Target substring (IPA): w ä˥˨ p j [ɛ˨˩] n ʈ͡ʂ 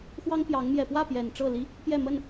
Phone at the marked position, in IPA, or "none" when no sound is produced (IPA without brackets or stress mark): ɛ˨˩